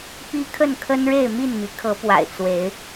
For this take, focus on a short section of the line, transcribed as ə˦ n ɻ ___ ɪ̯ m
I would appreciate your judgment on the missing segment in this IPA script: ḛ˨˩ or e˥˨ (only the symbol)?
e˥˨